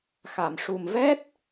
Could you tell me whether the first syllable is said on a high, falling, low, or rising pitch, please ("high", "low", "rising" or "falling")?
low